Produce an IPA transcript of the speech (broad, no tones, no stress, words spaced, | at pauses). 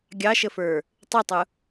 ɡʲɑʃəfə˞ | tˤitˤʊ